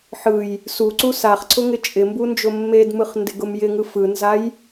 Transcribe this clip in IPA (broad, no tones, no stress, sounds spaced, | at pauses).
ħ ɯ j | s u ǀ u s a χ ǀʰ ʊ ŋ ɪ t͡ʃʼ ɪ m b u n d͡ʒ ʊ mː e d m ɯ χ n d ɪ ɡ ʊ m j ɪ ŋ ɯ f ɯ n z a j